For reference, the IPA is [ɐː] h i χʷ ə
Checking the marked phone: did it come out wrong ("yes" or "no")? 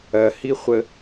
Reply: yes